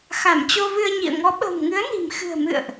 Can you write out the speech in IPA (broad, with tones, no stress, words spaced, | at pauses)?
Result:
xa˧˩mt͡ɕo˧vɨ˧ə̯ɲḭ˧˨ə̯ ŋɔ˨˦ɓə̤ː˨˩mŋɨ˨˦ə̯ni̤˨˩m xɨ̤˨˩ə̯mɨ̰˧˨ə̯ʔ